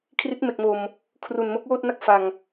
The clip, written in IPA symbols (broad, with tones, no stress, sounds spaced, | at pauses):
kʰ r i˦˥ t̚ m e˨˩ k̚ m o˨˩ m | kʰ r u˨˩ n m o˦˥ k̚ w oː˥˩ t̚ n a˥˩ k̚ f a˨˩ ŋ